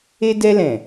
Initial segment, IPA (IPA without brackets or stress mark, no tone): e